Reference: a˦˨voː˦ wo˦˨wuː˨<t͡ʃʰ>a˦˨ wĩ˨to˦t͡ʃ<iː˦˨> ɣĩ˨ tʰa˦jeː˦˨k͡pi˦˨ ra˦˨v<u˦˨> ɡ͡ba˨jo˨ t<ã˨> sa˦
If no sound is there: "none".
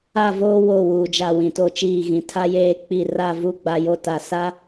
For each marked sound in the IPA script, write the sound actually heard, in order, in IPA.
d͡ʒ, iː˦˨, u˦˨, a˨

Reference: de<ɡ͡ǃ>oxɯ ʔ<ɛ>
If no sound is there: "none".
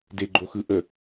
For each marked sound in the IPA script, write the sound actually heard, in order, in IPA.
ɡ͡ǃ, ə

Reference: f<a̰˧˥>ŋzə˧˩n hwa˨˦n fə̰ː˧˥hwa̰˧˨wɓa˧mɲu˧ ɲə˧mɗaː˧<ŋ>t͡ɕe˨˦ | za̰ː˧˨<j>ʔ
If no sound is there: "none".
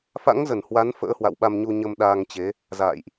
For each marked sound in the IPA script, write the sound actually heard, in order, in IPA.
a̰˧˥, ŋ, j

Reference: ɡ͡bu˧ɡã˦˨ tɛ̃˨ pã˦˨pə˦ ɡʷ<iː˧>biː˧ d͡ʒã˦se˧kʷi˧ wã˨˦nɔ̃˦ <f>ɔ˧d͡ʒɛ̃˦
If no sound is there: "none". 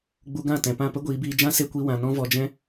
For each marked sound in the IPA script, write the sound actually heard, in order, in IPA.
iː˨˦, v

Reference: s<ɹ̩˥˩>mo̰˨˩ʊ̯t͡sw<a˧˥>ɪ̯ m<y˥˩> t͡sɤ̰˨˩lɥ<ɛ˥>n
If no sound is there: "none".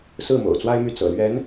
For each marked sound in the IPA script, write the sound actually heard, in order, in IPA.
ɹ̩˥˩, a˥, y˥˩, ɛ˧˥

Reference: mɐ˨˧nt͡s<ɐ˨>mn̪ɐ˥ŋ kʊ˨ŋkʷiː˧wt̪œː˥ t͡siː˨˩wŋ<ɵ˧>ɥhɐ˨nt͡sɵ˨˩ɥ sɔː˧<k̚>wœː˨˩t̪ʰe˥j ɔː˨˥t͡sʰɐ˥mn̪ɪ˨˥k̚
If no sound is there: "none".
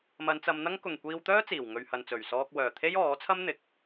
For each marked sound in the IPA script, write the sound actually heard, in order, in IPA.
ɐ˨˧, ɵ˨, k̚

